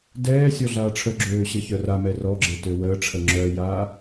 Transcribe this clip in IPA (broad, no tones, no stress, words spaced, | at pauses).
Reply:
dɛːsʲɔ ɮaːʈ͡ʂʰœɡ͡ǁøː ɕəçœramɛ rɔɡ͡ǁe tøwəːʈ͡ʂʰə ŋ͡ǁœjaː